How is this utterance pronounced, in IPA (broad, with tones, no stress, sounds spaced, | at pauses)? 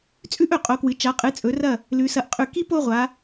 t͡sʼ ʉ˥ ʔ ɵ˧˩ qʼ o˩˧ k w ɨ˩˧ t͡ʃ a˩˧ qʼ ɨ˩˧ t͡sʼ ɵ˩˧ r ɐ˧˩ | l ʉ˩˧ s ɐ˧˩ ʔ qʼ ʉ˧˩ k i˥ p o˥˧ ʁʷ a˩˧